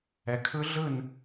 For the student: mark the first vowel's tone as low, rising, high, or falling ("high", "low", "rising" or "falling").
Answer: low